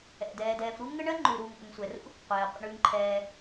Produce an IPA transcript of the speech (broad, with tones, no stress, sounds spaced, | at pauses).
ɛ̰˨ d ɛː˨ d ɛː˨ f ɾ u˥ ŋ ə˥ ɳ ɜ˥ ŋ͡ǃ ʉ˨ ɾ uː˨ ŋ ʔ ə˨ ŋ sʷ ɛ˨ r ṵ˥ | qʷ ɛː˨ qʷ ə̰˨ ɳ ʉː˨ ŋ ǃʰ ɛː˨